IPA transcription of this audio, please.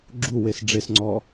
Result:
ɡ͡ǁ u w e s ɖ͡ʐ e s ŋ͡ǀ ɔ

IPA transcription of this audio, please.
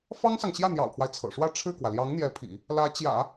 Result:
f ɑ˥ ŋ s ɑ˨ ŋ ɕ j ä˥˩ n̪ j ɑ̰˨˩ ʊ̯ pʰ w a˦ ɪ̯ t͡sʰ ɤ̰˨˩ ʂ w ä˥˧ ʈ͡ʂʰ ɻ̩˥˩ k w ä˩ l j ɑ˧˥ ŋ n̪ j ɛ˧˥ pʰ ḭ˨˩˦ | l ä˧˥ t͡ɕ j ä̰˨˩˦

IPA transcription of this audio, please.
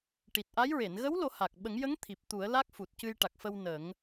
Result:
ʈ i˨˩ t̚ ʔ a˧˥ j ɹ e˨˩˨ n ɣ ə˧˥ w l o˨˩˦ h a˨˩ k̚ ɓ ə˨˩˦ ŋ j ə˧˥ ŋ t̪ʰ i˨˩ p̚ t̪ u˨˩˦ ə̯ l a˦˥ k̚ f u˨˩ t̚ c ɨ˧ j ʈ a˨˩ k̚ f ə˧ w n ə˨˩˦ ŋ

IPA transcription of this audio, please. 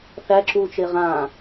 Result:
θ æ ǁ uː t͡ʃ e ʁ ã

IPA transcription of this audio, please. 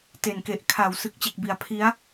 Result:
t e˨˩ n k e˨˩ ʔ kʰ a˨˩ w s ɯ˨˩ k̚ t͡ɕ e˨˩ k̚ b i˨˩ a̯ pʰ i˦˥ a̯

